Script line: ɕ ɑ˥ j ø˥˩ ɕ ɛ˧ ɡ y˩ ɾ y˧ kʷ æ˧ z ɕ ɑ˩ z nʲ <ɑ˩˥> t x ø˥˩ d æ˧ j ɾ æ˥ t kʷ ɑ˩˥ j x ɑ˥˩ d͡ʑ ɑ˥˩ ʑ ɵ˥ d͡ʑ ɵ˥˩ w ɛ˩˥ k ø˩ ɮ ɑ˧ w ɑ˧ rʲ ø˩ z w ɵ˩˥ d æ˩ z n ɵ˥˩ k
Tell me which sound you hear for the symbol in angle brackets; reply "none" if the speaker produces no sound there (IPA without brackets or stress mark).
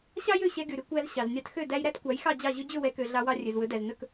ɑ˧